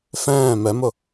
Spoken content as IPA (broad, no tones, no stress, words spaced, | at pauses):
fɛ̃ː mɛmʊ